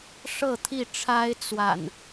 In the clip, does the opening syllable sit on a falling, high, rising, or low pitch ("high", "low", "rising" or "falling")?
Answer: falling